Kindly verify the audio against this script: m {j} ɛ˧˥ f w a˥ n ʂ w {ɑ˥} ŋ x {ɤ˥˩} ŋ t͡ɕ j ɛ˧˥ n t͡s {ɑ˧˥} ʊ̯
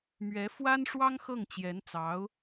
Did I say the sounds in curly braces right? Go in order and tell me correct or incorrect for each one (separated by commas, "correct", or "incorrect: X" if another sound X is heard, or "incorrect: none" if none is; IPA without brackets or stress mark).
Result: incorrect: ɥ, correct, correct, correct